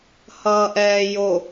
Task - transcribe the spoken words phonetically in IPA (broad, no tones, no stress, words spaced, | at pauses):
hʌːʔɛːjo